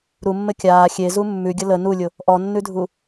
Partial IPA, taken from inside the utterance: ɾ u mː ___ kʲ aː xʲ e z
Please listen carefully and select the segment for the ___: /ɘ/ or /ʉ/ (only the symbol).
ɘ